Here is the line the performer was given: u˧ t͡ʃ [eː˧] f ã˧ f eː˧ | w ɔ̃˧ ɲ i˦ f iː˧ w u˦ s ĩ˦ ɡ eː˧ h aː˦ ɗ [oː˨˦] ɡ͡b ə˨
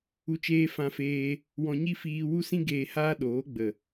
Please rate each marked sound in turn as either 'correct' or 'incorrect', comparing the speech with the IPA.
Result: correct, correct

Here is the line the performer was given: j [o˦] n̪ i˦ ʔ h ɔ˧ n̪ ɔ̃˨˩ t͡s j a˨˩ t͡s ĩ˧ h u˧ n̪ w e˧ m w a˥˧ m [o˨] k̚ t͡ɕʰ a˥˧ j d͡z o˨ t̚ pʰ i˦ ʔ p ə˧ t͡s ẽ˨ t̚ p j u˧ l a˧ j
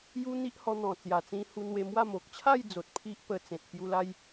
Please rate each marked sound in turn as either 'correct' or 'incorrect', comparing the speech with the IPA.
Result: incorrect, correct

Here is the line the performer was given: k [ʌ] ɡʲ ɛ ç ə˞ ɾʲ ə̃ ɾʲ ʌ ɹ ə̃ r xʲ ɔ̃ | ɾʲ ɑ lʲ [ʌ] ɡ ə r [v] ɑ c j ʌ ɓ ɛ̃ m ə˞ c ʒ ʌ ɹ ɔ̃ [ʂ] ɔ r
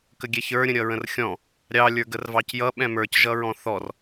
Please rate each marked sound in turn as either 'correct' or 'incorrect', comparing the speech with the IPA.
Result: incorrect, incorrect, correct, incorrect

